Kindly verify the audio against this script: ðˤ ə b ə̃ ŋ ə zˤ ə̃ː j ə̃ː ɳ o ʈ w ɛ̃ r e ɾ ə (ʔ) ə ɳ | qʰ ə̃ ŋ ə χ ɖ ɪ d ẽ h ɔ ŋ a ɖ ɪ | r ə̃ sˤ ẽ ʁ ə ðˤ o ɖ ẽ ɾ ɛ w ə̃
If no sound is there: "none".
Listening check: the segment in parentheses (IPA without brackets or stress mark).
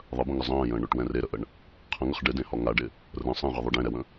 ʔ